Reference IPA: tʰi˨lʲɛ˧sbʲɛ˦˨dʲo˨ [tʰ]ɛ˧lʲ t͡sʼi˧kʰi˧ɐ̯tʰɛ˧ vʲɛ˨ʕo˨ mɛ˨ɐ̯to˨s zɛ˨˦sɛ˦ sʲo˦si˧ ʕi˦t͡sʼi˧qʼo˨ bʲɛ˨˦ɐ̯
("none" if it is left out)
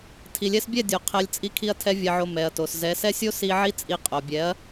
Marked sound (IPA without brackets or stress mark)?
qʰ